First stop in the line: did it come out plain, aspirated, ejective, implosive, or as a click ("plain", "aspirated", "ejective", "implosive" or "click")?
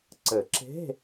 click